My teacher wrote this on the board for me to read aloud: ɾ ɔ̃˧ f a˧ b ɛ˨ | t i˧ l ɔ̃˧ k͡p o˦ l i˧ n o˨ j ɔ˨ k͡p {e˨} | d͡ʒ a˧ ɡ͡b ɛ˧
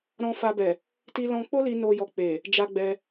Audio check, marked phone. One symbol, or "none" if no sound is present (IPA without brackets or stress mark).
e˨